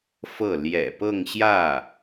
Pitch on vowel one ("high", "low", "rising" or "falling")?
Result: falling